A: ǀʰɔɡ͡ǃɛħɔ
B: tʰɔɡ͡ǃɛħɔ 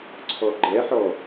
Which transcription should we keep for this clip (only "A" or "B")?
A